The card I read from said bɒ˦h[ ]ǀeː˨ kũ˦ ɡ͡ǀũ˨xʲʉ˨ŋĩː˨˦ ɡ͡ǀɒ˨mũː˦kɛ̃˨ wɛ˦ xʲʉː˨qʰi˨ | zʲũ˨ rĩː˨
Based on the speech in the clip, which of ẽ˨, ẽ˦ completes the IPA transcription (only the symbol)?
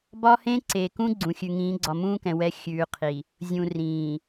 ẽ˦